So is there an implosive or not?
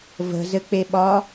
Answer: yes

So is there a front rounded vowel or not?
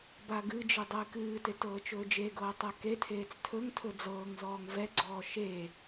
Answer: no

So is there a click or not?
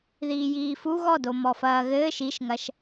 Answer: no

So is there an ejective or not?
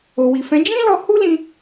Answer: no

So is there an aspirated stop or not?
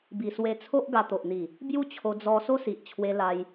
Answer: yes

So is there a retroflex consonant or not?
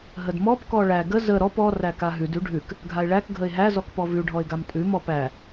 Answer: yes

